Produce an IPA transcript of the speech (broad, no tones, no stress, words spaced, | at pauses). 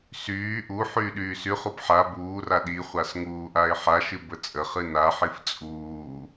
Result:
syː ʔu ħyːɗyːsyχub ħa buːra ɗiχʷas ŋuːʔaɪ̯ħaʃɨ bət͡sʼəχɨ naħif t͡sʼuː